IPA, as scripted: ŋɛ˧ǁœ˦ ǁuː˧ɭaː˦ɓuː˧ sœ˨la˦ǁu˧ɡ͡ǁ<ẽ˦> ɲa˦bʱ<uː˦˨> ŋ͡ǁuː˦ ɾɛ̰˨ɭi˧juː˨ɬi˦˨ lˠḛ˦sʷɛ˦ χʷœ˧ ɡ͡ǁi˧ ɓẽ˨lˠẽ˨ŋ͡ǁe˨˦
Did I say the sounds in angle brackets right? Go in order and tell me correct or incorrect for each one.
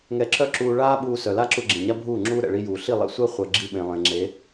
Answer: incorrect: ẽ˨, correct

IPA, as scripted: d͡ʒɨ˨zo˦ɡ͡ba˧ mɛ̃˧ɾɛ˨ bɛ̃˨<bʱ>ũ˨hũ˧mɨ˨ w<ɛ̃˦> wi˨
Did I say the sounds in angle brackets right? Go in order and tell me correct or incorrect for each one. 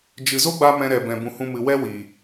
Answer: incorrect: b, incorrect: ɛ˦

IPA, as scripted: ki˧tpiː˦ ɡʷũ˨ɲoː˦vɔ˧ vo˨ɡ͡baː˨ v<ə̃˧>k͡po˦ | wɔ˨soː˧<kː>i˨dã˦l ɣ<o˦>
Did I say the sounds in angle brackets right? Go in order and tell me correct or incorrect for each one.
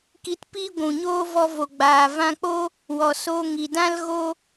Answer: incorrect: ã˧, incorrect: ŋ, correct

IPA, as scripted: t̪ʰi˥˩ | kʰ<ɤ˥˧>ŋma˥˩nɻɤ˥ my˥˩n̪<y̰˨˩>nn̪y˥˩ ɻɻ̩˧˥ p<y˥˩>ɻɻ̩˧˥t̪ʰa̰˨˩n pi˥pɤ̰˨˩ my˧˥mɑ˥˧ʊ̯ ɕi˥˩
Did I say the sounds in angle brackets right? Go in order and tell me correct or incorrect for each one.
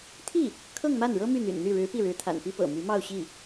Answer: correct, correct, incorrect: i˥˩

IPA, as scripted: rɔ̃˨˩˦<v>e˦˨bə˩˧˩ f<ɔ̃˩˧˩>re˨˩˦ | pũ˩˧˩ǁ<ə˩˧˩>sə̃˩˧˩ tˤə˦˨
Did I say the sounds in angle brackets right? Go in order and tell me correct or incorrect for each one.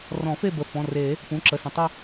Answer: incorrect: f, correct, correct

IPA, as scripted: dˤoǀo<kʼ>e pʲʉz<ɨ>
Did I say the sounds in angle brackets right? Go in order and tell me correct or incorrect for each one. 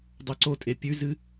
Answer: incorrect: tʼ, correct

